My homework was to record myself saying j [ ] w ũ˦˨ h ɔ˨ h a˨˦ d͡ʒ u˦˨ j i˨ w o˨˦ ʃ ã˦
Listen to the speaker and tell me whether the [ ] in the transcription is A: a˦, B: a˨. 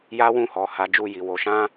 A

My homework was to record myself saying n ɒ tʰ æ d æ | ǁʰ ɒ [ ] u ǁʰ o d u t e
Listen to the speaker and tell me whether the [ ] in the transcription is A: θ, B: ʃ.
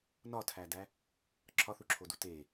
A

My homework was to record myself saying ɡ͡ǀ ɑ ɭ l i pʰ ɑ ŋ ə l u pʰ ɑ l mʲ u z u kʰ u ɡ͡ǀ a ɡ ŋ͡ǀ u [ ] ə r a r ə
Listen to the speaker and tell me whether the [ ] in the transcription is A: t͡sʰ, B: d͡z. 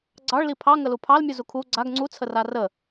A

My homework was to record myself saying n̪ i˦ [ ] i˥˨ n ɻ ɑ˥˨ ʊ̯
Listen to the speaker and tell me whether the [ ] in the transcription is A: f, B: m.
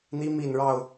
B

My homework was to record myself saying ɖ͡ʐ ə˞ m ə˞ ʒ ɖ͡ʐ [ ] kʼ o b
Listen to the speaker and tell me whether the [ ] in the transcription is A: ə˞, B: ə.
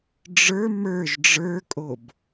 A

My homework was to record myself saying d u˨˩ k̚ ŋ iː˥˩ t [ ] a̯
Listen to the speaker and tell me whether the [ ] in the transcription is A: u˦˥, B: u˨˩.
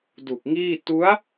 A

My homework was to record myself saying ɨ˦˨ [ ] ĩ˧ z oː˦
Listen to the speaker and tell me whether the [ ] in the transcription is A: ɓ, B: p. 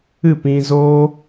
B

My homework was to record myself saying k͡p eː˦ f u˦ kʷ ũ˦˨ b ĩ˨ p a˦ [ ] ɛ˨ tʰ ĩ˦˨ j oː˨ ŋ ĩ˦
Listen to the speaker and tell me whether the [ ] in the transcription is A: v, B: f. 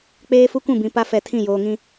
B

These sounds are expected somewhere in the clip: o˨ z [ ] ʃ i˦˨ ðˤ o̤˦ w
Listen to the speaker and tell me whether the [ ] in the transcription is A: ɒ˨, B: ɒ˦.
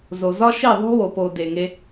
B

